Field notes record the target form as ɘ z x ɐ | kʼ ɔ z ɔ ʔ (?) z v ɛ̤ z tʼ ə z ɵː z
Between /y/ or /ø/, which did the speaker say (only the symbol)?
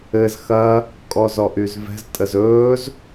y